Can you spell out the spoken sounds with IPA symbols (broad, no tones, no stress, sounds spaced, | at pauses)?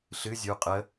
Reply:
ɬ ɨ zʲ u qʼ ə